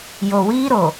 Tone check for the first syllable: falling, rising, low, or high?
low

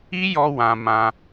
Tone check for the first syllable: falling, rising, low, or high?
high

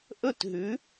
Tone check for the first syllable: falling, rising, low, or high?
falling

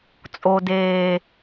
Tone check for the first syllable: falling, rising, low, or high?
low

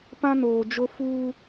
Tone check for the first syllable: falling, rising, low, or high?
high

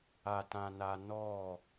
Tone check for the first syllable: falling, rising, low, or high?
high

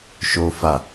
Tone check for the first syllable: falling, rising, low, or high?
high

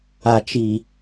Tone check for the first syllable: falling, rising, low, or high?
low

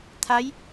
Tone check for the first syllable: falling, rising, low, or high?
rising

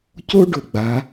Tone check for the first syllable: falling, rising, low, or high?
high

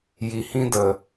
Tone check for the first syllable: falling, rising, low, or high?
low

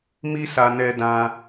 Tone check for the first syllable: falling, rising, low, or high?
high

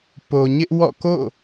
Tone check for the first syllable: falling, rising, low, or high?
low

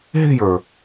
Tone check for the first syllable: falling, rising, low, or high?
falling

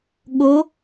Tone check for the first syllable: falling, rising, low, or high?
rising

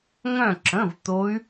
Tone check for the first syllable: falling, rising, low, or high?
falling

